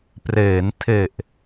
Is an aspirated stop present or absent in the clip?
present